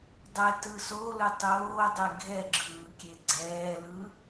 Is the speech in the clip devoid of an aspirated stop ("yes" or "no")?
yes